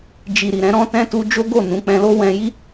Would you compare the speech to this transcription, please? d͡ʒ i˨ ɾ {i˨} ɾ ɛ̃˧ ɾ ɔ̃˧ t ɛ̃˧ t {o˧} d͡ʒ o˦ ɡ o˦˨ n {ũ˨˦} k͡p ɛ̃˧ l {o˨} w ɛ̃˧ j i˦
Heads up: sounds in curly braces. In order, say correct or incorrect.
correct, incorrect, correct, incorrect

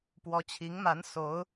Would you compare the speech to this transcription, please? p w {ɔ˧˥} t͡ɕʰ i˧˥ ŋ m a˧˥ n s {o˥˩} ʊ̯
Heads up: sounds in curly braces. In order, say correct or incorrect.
correct, incorrect

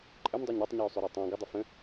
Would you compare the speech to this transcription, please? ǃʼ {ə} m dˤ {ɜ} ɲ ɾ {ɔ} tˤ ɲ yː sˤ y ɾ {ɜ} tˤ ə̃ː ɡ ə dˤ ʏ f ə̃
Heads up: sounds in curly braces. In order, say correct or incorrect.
correct, correct, correct, incorrect

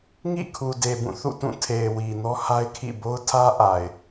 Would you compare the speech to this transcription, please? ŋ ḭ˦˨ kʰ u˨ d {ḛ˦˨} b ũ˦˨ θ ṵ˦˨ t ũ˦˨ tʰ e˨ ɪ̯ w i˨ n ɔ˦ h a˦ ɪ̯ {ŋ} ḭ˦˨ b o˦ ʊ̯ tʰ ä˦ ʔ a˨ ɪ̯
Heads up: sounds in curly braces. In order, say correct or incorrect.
incorrect, incorrect

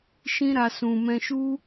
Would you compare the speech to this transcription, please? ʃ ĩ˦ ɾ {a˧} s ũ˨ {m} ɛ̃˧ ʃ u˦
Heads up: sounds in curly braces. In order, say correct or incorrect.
correct, correct

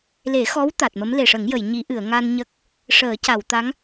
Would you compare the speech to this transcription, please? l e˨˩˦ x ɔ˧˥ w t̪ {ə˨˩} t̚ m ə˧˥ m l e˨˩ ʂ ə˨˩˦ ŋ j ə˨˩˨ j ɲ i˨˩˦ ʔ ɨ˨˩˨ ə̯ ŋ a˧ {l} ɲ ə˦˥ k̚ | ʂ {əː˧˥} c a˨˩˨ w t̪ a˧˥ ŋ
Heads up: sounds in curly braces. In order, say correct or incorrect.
incorrect, incorrect, incorrect

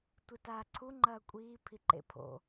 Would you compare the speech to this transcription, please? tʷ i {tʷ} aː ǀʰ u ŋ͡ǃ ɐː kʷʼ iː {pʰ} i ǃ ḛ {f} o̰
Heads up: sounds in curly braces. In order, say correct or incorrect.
incorrect, correct, incorrect

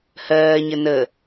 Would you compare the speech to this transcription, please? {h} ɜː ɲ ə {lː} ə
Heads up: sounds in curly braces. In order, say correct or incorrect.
correct, incorrect

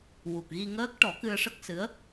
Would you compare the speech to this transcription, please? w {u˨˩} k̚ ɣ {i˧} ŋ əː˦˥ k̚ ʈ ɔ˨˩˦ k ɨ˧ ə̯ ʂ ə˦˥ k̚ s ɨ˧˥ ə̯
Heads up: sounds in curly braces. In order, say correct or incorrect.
correct, correct

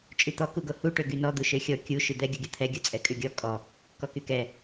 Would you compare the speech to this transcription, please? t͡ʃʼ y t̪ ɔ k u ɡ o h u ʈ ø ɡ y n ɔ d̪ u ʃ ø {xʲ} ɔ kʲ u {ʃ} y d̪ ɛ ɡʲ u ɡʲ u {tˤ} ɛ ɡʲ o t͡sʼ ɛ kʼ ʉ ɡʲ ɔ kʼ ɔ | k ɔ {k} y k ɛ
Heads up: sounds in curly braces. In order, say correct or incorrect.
correct, correct, incorrect, correct

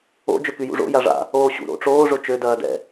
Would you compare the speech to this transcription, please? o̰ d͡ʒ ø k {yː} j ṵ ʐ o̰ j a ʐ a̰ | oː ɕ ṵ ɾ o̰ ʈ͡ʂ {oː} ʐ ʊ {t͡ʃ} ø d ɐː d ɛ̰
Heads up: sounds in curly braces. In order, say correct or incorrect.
incorrect, correct, correct

